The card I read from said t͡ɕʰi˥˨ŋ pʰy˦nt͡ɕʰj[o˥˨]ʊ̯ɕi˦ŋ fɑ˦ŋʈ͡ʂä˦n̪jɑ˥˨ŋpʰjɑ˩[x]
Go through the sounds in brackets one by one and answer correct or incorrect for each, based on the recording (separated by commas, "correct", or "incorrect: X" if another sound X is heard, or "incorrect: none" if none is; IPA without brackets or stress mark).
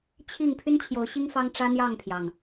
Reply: incorrect: o˨˦, incorrect: ŋ